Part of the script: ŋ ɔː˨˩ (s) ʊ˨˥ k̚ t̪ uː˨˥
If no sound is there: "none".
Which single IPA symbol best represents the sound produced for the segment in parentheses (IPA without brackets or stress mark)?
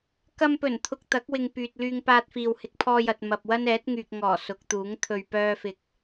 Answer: s